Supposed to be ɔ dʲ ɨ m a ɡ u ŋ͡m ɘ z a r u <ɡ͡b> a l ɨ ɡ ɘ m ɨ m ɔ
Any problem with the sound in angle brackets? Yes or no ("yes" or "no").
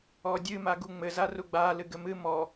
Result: no